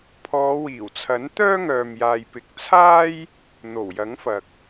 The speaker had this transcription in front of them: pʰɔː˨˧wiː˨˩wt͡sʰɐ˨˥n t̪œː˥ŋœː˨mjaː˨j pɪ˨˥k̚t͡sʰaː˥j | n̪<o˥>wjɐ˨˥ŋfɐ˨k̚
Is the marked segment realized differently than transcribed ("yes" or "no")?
yes